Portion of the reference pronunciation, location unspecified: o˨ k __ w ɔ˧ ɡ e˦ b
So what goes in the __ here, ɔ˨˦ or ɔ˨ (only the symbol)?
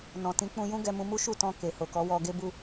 ɔ˨˦